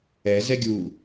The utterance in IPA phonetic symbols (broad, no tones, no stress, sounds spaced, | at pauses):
ɛ z ɛ ɡʲ u